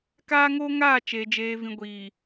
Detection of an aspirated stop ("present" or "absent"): absent